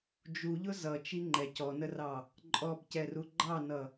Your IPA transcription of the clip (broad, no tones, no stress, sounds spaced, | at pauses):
d͡ʒ u ʎ ʊ z ʌ t͡ʃ i ŋ͡ǃ ɛ c ɔ n ə r ɑ | ǃʼ ɔ b c ɛ r u ɡ͡ǃ ɑ n ʌ